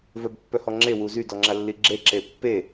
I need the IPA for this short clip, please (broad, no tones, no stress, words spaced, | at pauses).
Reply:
vœbpːœhɔŋ͡ǁe wuzy dɔŋ͡ǁalːiɡ͡ǁe ǁepːe